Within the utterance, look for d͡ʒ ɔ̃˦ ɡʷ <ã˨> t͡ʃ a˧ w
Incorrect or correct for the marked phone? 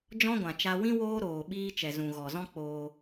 correct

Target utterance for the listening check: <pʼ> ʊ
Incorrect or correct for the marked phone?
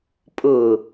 correct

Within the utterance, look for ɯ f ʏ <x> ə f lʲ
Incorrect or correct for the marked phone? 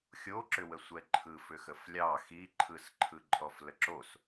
correct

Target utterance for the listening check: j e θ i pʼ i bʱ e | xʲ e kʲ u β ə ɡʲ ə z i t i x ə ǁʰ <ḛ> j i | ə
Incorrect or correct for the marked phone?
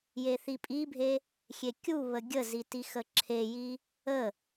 incorrect: e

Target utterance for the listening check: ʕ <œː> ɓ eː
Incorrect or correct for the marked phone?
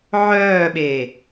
correct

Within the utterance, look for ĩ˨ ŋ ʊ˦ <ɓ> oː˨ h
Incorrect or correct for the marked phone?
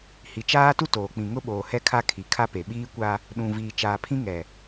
correct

